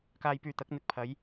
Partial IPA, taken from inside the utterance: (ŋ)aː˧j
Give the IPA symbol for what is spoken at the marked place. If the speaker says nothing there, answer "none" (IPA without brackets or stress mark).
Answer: k